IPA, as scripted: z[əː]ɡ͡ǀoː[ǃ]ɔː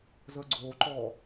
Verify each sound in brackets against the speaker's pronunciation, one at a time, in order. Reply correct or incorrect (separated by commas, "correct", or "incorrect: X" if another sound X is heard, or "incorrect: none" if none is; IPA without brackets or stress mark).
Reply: correct, correct